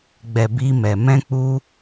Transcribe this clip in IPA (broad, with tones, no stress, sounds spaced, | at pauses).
ɡ͡b ɛ˨ b i˧ m ɛ˨ m ɛ̃˧ k͡p u˧